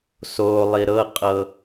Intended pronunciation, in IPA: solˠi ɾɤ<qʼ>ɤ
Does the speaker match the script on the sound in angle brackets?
yes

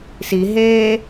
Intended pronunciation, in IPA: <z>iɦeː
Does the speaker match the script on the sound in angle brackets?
no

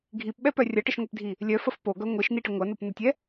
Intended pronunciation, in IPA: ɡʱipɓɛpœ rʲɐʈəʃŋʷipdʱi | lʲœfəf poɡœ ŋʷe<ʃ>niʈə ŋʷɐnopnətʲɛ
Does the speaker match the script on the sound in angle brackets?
yes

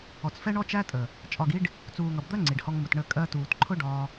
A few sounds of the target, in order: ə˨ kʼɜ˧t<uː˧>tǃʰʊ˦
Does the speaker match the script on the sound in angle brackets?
no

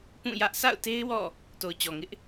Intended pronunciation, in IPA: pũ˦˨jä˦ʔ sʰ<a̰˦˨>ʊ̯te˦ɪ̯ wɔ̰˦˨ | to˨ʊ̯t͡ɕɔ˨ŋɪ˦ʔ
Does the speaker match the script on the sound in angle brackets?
yes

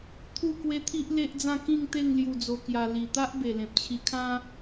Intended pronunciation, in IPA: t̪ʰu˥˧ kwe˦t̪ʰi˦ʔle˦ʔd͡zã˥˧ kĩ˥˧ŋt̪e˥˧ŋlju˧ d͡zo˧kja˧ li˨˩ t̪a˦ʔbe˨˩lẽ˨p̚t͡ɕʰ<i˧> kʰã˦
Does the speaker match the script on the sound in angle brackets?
yes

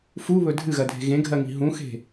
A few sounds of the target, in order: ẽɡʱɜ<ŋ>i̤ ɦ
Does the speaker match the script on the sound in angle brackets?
yes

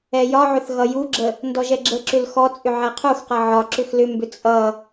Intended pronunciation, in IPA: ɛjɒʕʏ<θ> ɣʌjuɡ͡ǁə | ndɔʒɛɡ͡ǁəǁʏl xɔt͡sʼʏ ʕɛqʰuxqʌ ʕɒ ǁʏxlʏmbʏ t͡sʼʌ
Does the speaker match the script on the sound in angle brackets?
yes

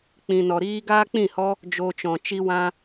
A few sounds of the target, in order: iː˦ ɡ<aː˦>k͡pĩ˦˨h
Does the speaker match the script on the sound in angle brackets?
yes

